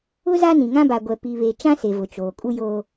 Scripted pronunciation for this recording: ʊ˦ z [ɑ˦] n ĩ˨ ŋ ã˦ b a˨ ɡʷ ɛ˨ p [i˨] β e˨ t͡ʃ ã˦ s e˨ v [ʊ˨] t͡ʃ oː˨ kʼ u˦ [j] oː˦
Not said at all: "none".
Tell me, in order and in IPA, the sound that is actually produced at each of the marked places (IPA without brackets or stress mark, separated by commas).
a˦, i˨, ʊ˨, j